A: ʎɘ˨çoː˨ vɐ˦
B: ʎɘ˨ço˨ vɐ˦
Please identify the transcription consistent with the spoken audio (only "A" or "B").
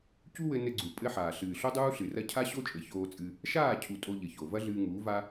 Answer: B